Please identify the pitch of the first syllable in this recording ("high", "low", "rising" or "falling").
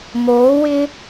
rising